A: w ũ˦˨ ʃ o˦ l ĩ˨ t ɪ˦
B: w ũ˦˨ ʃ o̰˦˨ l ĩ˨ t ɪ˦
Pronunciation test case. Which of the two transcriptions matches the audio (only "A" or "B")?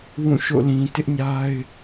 B